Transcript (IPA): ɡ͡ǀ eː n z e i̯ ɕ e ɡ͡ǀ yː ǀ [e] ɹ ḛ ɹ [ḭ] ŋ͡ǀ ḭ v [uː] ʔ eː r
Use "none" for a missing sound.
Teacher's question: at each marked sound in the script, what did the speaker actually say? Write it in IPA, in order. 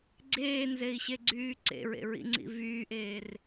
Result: ḛ, ḭ, yː

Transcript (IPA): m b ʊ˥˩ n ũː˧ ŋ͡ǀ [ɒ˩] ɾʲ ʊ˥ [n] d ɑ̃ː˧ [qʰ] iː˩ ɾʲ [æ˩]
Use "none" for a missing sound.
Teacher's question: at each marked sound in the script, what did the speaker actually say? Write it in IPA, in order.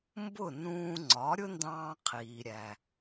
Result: ɒ˩˥, n, qʰ, æ˩

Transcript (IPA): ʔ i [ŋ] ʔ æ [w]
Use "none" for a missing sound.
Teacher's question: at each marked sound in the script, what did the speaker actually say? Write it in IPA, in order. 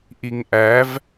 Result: ŋ, v

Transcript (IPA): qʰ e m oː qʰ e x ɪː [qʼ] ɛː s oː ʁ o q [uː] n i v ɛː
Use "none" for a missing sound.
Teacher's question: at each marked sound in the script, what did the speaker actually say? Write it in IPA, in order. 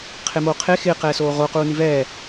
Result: q, uː

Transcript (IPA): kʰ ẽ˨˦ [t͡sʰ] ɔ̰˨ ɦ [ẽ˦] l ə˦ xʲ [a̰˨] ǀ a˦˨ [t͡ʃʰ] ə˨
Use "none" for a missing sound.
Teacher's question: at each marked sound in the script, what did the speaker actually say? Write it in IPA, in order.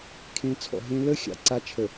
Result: t͡sʰ, ẽ˦, a̰˨, t͡ʃʰ

